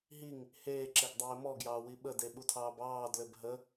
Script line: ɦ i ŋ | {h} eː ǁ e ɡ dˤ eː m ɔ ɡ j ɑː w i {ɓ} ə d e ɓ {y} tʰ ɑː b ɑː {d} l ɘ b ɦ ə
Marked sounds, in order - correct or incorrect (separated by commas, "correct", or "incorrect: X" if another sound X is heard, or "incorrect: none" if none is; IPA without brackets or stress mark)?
correct, correct, incorrect: u, correct